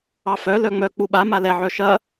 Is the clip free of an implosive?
no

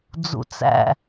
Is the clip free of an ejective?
yes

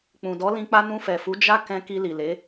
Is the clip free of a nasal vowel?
no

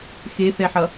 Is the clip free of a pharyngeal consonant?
no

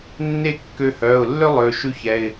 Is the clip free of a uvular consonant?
yes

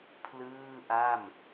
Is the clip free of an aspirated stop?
no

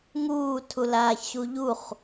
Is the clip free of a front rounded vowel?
yes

